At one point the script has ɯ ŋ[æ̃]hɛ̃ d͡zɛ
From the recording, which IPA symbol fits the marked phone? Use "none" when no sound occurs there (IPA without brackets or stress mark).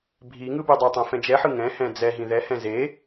ɛ̃